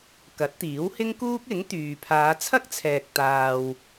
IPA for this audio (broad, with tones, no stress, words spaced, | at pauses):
kɐ˨˥t̚t̪iː˨˥whɪ˥ŋkuː˥k̚ ɪ˨˥ŋ t̪yː˨ pʰaː˨˧t͡sʰɐ˥k̚t͡sʰɛː˨k̚ t̪aː˨w